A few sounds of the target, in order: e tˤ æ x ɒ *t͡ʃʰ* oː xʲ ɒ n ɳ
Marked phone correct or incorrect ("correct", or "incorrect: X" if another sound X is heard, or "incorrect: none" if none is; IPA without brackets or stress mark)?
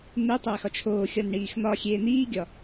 correct